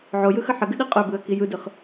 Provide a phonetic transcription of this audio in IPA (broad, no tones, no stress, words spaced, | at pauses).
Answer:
ʕojɯxə ħəɡɨɗi qʼøbɯə̯ki jɯdɯχ